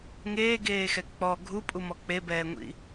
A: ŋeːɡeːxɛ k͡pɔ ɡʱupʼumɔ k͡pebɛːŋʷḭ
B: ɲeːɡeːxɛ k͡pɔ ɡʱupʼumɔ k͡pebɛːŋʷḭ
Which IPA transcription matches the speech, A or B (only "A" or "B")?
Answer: A